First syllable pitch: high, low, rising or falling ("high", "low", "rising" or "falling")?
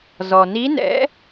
low